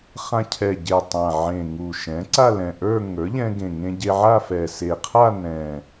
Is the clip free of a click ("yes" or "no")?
no